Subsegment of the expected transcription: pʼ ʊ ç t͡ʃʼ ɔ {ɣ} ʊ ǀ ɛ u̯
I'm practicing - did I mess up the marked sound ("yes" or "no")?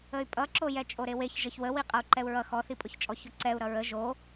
yes